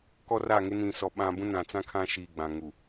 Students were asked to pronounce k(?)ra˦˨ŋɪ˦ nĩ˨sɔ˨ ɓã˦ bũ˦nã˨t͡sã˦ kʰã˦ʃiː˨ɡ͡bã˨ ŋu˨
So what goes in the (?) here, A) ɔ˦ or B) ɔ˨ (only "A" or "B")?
A